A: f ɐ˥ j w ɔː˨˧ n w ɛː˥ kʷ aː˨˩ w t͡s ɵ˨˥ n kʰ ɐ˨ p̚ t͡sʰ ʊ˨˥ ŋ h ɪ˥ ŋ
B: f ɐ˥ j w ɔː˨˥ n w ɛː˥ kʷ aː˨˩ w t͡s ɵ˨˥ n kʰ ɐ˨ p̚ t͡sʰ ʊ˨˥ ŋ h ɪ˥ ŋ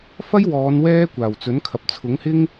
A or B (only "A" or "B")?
A